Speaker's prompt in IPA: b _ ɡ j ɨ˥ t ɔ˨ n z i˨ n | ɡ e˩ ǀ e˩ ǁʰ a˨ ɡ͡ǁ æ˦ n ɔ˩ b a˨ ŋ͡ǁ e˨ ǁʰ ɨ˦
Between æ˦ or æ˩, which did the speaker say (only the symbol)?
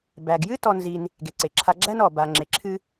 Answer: æ˩